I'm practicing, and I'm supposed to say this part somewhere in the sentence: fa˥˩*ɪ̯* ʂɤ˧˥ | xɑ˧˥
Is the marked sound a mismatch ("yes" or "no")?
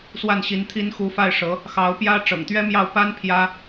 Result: no